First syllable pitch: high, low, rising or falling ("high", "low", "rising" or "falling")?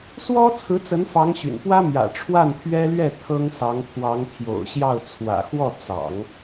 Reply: high